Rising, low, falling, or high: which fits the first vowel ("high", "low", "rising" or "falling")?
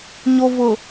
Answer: low